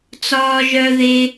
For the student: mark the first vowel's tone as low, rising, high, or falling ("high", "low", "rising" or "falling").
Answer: high